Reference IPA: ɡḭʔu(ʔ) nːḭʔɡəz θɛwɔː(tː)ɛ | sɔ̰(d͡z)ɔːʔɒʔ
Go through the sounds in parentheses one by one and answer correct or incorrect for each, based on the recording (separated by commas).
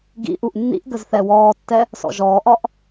correct, correct, incorrect